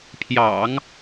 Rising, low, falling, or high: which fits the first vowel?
low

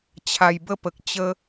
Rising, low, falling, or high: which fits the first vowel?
low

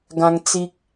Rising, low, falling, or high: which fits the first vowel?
high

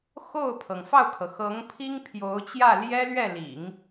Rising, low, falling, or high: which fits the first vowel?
falling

